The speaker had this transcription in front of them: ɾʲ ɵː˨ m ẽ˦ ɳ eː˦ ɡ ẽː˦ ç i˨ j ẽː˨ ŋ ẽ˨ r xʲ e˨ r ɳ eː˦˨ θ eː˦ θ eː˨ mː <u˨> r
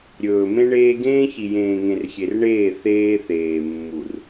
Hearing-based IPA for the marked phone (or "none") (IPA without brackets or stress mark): u˨